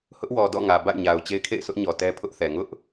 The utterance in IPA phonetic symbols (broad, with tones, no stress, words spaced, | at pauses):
hʊ˦ʔwɔ˨dɔ̰˦˨ ŋä˨ba̰˦˨ɪ̯ɲa˨ʊ̯ t͡ɕe˦ɪ̯kʰḛ˦˨ɪ̯sʰʊ˦ʔɲɔ˨ tɛ˦pʰʊ˦ʔθɛ˨ ŋʊ˦ʔ